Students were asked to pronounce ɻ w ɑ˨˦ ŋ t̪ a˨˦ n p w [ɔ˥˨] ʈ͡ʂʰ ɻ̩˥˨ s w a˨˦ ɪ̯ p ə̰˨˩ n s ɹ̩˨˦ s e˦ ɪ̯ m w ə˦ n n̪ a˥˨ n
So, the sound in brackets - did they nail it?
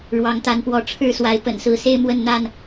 no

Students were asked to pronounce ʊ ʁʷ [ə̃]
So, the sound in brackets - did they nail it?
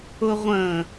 yes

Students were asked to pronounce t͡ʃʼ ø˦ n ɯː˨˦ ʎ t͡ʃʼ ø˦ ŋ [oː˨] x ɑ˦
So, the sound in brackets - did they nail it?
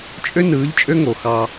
no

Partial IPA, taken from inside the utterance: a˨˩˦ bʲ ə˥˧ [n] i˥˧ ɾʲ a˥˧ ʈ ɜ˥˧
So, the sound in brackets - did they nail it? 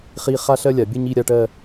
no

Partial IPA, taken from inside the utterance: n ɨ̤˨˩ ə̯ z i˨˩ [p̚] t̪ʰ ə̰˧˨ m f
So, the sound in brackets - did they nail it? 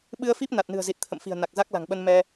no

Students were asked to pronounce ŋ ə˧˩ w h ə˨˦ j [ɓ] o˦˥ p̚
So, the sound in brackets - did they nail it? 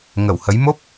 no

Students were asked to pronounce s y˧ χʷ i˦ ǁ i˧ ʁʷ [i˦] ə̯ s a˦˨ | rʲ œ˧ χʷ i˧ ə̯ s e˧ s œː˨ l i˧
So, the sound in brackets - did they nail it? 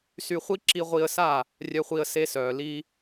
no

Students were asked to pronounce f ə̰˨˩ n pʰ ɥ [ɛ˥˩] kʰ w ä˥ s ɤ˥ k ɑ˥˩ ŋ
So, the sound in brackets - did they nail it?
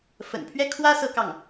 yes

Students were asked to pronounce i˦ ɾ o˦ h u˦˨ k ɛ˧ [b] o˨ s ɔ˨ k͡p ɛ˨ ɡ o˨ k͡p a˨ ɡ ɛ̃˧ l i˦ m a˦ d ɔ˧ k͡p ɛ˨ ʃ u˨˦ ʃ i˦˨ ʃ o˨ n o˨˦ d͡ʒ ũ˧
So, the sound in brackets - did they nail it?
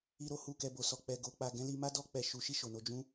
yes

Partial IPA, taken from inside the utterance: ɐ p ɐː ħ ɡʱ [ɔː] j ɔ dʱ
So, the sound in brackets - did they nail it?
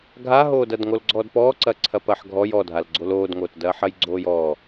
no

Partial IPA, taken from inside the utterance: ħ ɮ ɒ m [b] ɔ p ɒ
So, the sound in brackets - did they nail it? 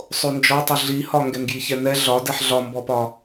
yes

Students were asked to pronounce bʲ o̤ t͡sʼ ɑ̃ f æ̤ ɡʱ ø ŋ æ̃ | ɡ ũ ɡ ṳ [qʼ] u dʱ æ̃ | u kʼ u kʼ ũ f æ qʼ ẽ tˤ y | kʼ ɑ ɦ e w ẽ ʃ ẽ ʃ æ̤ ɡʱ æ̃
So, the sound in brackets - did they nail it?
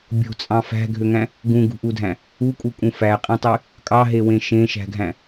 no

